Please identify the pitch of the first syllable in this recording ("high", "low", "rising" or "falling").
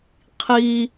high